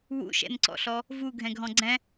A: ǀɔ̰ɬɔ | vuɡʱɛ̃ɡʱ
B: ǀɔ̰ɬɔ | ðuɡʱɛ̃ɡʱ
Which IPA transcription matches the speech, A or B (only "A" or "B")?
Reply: A